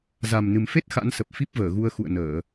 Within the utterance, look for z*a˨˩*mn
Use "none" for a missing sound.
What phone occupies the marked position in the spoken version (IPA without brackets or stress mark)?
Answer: a˨˩